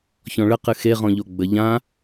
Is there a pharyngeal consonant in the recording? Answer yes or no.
no